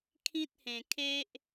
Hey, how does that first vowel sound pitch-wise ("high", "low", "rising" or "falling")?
high